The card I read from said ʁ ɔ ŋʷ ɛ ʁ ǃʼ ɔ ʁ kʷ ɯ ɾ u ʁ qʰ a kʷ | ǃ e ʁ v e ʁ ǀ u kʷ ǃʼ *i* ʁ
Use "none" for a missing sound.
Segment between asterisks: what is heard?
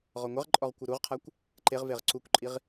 i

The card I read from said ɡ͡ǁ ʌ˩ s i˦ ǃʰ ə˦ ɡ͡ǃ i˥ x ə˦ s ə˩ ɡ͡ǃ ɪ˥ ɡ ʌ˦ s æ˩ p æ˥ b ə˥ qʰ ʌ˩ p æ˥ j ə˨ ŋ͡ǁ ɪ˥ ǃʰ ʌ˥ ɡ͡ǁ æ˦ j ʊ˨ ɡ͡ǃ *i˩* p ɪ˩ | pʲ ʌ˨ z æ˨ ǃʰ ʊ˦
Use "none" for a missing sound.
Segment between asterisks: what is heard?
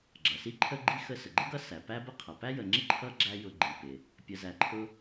i˩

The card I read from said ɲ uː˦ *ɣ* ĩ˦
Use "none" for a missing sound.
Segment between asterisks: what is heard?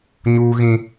ɣ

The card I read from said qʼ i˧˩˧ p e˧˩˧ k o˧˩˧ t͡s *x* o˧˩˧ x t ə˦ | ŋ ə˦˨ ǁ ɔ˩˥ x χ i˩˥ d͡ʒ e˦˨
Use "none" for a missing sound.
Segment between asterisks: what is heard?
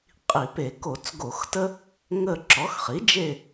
ɡ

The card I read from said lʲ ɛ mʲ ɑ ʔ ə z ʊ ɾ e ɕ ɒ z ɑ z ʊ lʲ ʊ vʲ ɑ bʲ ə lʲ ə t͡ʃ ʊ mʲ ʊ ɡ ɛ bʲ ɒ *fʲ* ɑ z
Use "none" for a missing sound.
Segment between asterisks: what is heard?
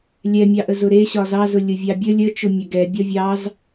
vʲ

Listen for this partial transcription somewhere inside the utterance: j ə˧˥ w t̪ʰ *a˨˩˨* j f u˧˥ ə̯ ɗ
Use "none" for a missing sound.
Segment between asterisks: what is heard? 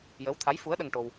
a˧˥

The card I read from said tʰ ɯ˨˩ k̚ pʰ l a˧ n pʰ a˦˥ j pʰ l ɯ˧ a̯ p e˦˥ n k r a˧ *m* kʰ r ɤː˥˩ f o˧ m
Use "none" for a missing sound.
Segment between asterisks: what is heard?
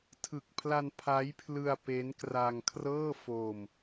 ŋ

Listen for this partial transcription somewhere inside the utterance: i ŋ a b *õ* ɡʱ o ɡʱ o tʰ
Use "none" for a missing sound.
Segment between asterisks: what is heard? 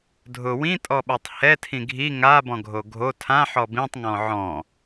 ɔ̃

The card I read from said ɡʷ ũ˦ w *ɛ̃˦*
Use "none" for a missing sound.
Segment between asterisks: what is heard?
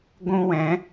ɛ̃˨˦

